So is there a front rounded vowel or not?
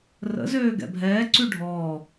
yes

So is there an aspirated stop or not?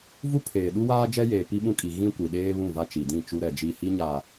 yes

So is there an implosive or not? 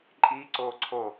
no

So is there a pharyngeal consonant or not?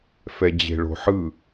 yes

